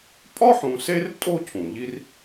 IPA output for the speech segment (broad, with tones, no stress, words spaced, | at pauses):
pʼɒ˥ħũ˨se˦r tʼo˥cʰũ˩ʎi˦r